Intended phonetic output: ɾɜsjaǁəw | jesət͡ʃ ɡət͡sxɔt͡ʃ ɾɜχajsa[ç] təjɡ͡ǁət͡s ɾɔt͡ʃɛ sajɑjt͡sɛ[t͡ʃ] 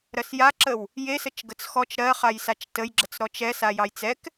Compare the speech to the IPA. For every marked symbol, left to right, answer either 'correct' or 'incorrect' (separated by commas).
incorrect, incorrect